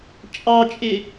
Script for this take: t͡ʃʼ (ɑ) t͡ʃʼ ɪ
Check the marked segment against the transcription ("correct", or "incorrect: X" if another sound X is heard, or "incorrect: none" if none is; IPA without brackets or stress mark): correct